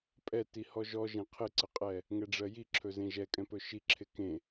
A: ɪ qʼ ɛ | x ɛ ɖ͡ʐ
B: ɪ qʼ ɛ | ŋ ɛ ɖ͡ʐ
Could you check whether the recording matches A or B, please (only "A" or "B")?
B